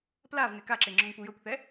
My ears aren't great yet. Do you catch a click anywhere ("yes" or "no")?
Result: yes